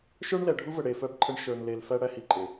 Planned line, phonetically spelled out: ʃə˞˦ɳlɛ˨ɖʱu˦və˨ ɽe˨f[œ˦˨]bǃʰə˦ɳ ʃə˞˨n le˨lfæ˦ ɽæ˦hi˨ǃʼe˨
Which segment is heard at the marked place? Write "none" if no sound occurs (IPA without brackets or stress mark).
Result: œ˦˨